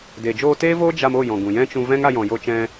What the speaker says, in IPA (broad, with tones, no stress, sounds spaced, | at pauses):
d e˨ d͡ʒ oː˧ t eː˦ v oː˦ d͡ʒ a˧ m o˦˨ j ɔ̃˨ ɡ ũ˨ j ɛ̃˦ t͡ʃ ũ˧ v ɛ̃˦ ŋ a˧ j ɔ̃˨ j o˧ t͡ʃ ɛ̃˧